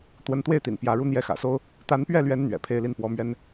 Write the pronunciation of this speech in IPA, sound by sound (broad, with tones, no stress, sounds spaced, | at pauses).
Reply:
t̪ w ə˧˥ n t̪ w e˥˩ ɪ̯ t̪ ḭ˨˩ n p j ä˧˥ ɻ u˥˧ n̪ j ɛ˥˩ x ä̰˨˩ s o˥ ʊ̯ | t̪ a˧˥ n p ɥ ɛ˥˩ l ɥ ɛ˧˥ n n̪ ɥ ɛ̰˨˩ pʰ e˥˧ ɪ̯ l i˥˩ n p w ɔ˧˥ m ɥ ɛ˥ n